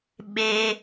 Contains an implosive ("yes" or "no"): yes